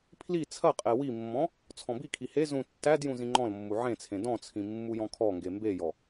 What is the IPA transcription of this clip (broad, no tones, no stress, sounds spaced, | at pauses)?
pʰ l i t͡sʰ ɐ qʼ e w i mː ɔ̃ | t͡sʰ ɔ̃ b i kʰ i h e z ũ tː æ d j ũ z ĩ ŋ͡ǃ ɔ̃ l mː u ʕ ẽ t͡sʰ ẽ d ɔ̃ t͡sʰ ĩ mː u j ɔ̃ kʰ ɔ ŋ ɡ e m b e j ɔ